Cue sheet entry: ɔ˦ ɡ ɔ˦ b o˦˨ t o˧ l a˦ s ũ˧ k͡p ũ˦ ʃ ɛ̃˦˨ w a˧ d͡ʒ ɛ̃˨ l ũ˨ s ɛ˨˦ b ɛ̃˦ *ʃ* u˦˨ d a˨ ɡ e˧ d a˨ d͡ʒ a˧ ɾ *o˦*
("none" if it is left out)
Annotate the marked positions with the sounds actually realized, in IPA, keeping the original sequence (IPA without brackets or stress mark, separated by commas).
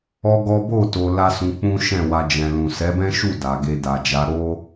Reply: ʃ, o˦